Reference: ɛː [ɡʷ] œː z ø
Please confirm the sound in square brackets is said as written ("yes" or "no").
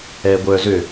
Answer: yes